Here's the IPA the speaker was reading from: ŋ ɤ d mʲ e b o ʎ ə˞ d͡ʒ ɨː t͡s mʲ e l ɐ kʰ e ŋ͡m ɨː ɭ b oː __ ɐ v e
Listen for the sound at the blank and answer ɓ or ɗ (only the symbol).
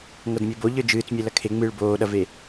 ɗ